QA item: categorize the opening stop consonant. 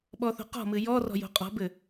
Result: implosive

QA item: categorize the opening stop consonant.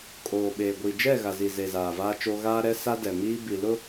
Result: ejective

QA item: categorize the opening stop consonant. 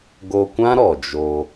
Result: plain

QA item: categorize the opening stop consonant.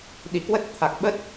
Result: implosive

